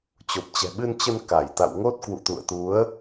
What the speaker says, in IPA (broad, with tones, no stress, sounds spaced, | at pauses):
t͡ɕ o˨˩ p̚ t͡ɕ ɛ̤˨˩ ɓ ɨ˧ n t͡ɕ ə˧ n k a˧˩ j t̪ a̰˧˨ w ŋ o˦˥ t̚ k w ṵ˧˨ t̪ ṵ˧˨ ə̯ t̪ u˨˦ ə̯